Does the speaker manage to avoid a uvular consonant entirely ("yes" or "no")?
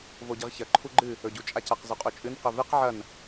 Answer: no